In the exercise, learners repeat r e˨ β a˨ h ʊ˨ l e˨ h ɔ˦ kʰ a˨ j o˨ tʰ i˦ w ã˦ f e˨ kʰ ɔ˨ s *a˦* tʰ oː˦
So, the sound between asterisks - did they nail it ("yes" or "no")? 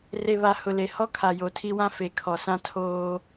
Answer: no